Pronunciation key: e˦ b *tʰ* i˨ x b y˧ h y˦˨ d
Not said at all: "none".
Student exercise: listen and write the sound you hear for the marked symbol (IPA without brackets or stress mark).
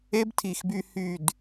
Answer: tʰ